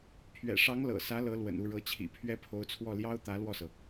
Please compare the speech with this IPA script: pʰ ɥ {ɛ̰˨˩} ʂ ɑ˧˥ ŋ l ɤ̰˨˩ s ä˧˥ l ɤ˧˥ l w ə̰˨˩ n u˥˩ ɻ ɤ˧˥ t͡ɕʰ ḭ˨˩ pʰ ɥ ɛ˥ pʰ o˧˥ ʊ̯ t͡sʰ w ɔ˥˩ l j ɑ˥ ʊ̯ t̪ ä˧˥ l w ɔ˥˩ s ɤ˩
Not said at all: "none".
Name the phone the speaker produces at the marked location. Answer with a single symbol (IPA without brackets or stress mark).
ɛ̰˨˩